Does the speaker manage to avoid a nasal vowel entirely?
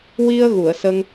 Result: yes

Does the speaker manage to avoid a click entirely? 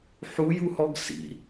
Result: yes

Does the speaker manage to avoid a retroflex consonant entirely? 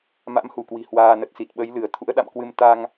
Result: yes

